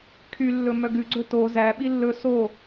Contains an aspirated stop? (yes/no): yes